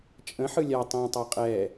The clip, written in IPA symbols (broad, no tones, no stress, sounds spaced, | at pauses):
t͡ʃʼ ə̃ ħ ɯ lʲ a tˤ ĩː tˤ a qʼ ɛː